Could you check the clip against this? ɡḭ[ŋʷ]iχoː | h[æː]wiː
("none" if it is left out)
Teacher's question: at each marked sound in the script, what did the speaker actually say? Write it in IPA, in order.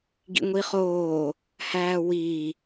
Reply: ŋʷ, æː

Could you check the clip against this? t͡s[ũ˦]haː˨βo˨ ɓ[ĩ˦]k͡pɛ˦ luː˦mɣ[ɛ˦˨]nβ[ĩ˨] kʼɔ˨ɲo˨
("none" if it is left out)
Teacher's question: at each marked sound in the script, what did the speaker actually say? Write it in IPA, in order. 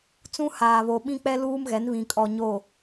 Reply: ũ˦, ĩ˦, ɛ˨˦, ĩ˨

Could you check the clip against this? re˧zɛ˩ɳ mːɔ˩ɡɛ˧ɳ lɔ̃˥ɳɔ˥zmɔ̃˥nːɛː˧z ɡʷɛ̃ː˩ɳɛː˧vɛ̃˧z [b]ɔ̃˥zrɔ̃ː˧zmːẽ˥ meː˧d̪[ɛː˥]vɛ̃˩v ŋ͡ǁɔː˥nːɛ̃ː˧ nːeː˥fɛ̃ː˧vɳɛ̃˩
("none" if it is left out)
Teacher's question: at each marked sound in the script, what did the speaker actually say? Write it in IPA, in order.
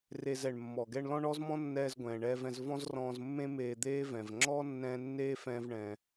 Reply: v, eː˥

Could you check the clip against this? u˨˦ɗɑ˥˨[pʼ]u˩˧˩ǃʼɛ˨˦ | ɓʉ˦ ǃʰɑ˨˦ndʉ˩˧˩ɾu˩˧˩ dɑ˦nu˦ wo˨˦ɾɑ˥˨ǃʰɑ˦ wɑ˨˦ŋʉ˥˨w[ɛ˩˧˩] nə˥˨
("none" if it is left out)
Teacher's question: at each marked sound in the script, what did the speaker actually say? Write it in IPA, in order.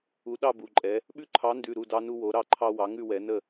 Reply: b, ɛ˨˦

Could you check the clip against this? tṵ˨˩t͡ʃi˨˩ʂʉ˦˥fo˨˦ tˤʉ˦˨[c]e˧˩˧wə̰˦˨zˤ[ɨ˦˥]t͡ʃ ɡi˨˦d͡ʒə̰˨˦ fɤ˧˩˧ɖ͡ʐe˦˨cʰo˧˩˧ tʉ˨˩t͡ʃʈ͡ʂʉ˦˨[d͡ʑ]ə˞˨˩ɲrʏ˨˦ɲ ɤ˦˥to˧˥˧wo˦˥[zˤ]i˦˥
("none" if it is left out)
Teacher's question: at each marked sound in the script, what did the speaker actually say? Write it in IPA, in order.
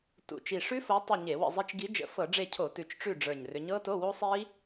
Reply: ɲ, i˦˥, ɖ͡ʐ, sˤ

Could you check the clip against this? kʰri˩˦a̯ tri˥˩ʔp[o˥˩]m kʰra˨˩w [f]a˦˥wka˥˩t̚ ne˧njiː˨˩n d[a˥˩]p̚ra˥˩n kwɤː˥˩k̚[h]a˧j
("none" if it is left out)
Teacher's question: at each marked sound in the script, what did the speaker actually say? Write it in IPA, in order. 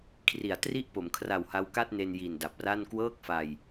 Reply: o˩˦, h, a˨˩, f

